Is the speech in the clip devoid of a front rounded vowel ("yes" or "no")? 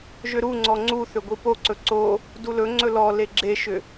no